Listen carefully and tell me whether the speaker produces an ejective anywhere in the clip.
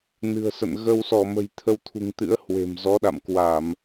no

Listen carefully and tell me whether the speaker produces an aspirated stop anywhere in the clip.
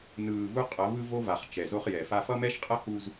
no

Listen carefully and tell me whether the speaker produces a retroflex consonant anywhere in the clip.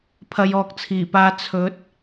no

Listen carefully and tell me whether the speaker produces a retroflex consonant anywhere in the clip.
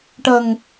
yes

